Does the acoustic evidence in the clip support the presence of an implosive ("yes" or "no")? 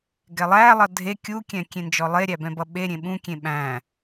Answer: yes